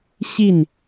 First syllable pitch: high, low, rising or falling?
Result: falling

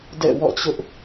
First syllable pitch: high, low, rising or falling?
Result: falling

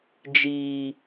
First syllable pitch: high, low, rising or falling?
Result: low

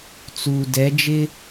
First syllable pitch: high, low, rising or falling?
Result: low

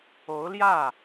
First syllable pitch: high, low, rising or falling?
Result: rising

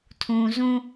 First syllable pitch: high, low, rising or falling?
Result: low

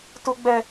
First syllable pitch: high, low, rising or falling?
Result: high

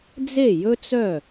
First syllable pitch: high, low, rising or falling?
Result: falling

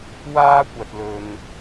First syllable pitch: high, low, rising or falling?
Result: high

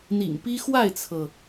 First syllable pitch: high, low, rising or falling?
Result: low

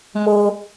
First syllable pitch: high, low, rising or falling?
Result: high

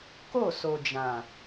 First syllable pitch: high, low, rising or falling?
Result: falling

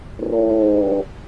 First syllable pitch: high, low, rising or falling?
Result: low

